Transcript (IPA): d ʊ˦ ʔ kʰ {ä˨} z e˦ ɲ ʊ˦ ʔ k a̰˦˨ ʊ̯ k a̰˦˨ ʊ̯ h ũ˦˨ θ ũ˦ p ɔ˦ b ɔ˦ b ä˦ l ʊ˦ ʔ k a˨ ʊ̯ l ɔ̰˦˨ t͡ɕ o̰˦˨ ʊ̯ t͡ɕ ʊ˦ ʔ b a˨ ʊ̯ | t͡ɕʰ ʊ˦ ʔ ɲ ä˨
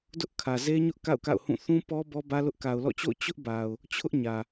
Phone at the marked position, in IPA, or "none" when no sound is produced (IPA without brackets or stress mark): ä˨